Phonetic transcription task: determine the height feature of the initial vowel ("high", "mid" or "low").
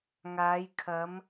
low